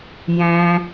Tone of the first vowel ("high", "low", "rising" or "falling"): low